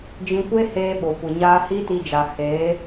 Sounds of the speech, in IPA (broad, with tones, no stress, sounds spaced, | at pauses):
d͡ʒ ĩ˧ kʷ e˦ h eː˧ ɓ o˨ kʷ ɨ˨ ɲ aː˦ h i˦ t i˧ d͡ʒ a˨ h eː˨˦